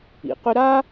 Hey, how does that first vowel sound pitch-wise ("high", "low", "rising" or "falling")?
low